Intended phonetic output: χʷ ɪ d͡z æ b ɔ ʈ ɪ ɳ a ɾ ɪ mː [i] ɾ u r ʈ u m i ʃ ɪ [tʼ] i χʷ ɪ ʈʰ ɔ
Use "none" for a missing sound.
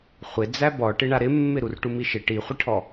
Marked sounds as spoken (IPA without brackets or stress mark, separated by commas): ɪ, ʈ